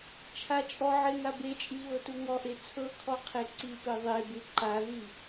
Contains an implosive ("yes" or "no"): no